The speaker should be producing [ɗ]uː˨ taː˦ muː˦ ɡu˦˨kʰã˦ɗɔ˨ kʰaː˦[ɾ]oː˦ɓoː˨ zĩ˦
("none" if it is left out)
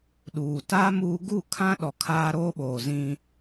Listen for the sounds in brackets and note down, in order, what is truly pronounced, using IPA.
ɗ, ɾ

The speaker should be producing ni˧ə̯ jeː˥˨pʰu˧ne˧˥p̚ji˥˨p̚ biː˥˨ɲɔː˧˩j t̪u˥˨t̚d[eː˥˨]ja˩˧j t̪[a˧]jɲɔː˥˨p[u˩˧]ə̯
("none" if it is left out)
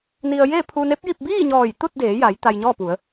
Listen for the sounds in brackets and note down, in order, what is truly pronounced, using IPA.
eː˩˧, a˧, u˩˧

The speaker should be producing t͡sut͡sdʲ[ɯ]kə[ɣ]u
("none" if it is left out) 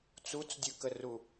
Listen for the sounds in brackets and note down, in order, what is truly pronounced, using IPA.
ɯ, r

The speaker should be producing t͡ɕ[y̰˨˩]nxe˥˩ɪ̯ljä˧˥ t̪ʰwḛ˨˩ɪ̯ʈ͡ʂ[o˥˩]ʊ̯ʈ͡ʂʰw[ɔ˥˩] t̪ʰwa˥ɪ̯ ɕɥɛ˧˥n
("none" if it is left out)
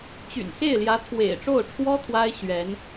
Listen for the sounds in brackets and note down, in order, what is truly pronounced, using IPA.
y̰˨˩, o˥˩, ɔ˥

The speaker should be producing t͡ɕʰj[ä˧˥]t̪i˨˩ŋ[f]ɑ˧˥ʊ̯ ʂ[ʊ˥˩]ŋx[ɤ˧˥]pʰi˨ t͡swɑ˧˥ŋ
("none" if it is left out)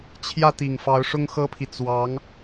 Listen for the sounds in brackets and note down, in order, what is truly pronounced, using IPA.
ä˥˩, f, ʊ˥, ɤ˥

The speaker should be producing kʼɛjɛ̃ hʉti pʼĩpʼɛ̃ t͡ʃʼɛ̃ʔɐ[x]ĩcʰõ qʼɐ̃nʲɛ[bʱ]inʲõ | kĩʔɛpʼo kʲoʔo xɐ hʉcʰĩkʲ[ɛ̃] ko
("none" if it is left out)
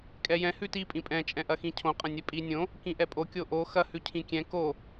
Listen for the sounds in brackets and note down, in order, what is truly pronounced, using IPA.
x, pʼ, ɛ̃

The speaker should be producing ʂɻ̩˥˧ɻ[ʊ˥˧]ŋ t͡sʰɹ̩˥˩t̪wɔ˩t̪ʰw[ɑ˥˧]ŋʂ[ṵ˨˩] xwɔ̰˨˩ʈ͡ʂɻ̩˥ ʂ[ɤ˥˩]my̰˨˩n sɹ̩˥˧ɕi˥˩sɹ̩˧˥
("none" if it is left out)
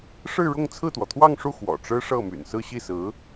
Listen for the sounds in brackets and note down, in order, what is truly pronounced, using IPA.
ʊ˥˧, ɑ˥˧, u˥˩, ɤ˥˩

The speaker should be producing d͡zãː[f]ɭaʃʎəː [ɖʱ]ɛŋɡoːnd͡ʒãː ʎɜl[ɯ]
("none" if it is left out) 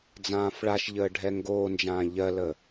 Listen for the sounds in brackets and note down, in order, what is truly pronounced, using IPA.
f, ɖʱ, ə

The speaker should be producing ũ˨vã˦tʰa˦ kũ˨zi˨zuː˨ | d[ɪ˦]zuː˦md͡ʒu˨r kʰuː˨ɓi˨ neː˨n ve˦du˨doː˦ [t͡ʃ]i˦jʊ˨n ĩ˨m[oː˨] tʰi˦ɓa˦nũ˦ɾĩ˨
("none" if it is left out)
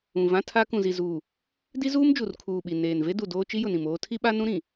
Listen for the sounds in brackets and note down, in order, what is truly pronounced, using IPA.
i˦, t͡ʃ, oː˦

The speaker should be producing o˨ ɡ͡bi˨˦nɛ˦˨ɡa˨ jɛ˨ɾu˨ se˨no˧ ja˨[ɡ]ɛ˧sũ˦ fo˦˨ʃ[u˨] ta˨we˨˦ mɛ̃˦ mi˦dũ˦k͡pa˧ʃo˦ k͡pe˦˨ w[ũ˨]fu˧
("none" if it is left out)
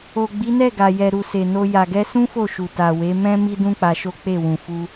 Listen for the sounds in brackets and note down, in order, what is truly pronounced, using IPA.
ɡ, u˨, ũ˨

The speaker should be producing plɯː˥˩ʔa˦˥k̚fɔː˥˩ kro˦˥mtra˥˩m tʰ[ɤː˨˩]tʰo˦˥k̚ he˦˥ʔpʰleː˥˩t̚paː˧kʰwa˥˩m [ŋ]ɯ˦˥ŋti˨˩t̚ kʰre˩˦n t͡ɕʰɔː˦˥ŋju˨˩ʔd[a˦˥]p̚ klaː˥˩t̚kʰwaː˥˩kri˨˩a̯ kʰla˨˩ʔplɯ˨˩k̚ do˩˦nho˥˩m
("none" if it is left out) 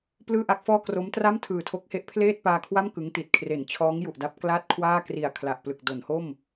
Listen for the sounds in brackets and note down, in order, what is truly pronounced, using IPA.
ɯː˨˩, k, a˦˥

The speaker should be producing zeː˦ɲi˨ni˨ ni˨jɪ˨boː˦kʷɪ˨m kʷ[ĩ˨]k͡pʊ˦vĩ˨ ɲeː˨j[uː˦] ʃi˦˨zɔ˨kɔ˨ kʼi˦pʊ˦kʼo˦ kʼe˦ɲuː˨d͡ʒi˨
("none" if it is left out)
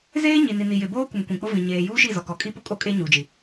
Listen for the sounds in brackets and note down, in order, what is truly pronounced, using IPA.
ĩ˨, uː˦

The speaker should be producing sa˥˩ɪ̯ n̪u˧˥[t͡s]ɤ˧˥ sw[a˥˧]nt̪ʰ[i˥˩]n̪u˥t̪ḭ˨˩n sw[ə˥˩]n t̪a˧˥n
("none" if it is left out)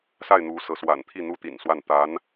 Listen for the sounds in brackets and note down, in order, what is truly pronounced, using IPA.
s, a̰˨˩, i˥˩, a˥˩

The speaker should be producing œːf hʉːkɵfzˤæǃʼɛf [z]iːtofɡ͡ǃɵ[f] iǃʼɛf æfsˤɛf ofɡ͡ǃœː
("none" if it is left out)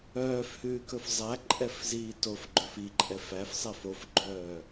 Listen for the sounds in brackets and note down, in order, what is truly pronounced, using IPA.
z, f

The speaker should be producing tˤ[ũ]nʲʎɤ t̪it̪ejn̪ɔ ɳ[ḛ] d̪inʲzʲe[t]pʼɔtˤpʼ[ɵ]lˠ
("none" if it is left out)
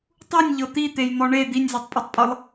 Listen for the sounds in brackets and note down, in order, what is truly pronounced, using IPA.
u, e, tˤ, ɤ

